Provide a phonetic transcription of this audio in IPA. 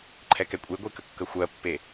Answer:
ǃʰ ɛ k ɛ kʷʼ e ɡʷ e k ə kː ə xʷ ɜ pː e

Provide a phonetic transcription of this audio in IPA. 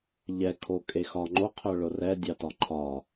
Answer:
ʎ ɛ kʰ o kʼ e x ɒ ŋ͡ǃ o qʰ œ ɭ ʊ r ɛ dʲ ɑ t ɒ ǃʰ ɒ

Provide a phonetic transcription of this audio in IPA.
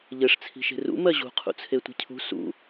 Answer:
ʎ ɘ ʂ t͡sʰ i̤ ʃ e̤ r ṵ m ɜ ʑ ṳ qʰ ṵ t͡sʰ e tʷ i̤ cʰ ṳ s ṵ

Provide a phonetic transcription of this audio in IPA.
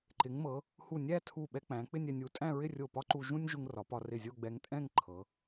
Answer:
ǃ ɪ˩˧ ŋ m ɤ˩˧ | h u˧˩ nʲ æ˥˧ tʰ u˧˩ ɓ ɛ˧ k͡p æ̃˩˧ k͡p ɪ˥˧ nʲ ɛ˧ nʲ u˩˧ tʼ æ̃˥˧ ɹ ɪ˥˧ rʲ o˧˩ p ɒ˥ ǃ u˧ ʒ ũ˥ nʲ ʒ u˧ ŋ r ɒ˩˧ p ɒ˩˧ r ɪ˧˩ zʲ o˥˧ ɡ͡b ɛ˧ ŋ tʼ ɛ̃˥˧ ŋ ǃʰ ɤ˩˧

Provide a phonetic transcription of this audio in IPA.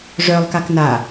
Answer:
ʐ œ lˠ k a k n a

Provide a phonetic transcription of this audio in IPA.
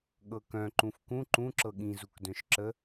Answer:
ɠ ɤ k œ̃ ǃ ũ f k ũ ǃ ũ ǁ ɤ ɠ ĩ z u k d œ̃ ʃ ǁ ə

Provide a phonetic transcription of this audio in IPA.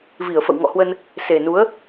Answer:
v i˧˩ ə̯ f ə̰˧˨ w ŋ ɔ̰˧˨ h w ə˧ n | s e˨˩ n u˨˦ ə̯

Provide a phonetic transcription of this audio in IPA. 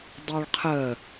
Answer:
dˤ y ɭ qʰ ə

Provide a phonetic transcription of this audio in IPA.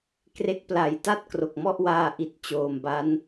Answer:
k r e˦˥ k̚ p l a˨˩ j t a˥˩ t̚ k r o˨˩ k̚ m ɔ˥˩ ʔ w aː˧ ʔ i˨˩ t̚ t͡ɕ oː˨˩ m b a˦˥ n

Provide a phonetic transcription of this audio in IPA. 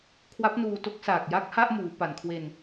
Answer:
kʰ w a˦˥ p̚ n uː˧ t o˦˥ k̚ s aː˨˩ k̚ j a˦˥ k̚ h a˥˩ ʔ m uː˩˦ p a˨˩ n kʰ w e˧ n

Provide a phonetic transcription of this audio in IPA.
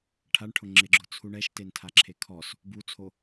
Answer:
ʈʰ a ɳ ʈʰ ʊ ŋ͡ǁ ɪ ɡ͡ǁ ʊ t͡sʰ u ɳ ɛ ʃ t e n tʰ a ǁʰ e kʰ ɔ s | b u t͡sʰ o

